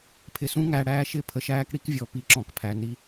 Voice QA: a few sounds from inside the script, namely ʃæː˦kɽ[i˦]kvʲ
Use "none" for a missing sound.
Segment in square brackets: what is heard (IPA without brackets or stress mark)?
i˦